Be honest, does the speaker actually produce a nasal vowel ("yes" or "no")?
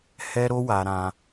yes